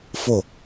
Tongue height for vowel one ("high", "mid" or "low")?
mid